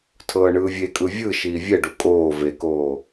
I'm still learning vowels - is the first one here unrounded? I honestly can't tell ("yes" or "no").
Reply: yes